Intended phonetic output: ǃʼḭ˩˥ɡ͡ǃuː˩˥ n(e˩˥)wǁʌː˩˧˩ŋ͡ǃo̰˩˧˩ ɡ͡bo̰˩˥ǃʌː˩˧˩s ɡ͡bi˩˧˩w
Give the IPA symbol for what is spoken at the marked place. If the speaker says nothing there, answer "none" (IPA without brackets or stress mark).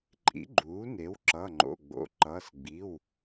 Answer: e˩˥